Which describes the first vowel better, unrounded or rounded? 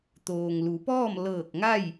rounded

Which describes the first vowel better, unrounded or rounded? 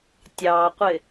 unrounded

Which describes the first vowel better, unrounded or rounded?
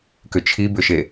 rounded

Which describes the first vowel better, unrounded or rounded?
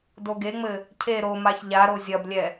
rounded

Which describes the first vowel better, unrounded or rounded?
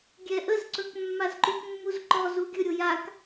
unrounded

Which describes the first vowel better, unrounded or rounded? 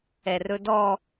unrounded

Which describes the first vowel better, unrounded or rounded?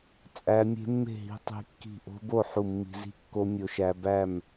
unrounded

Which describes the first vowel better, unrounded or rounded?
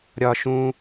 rounded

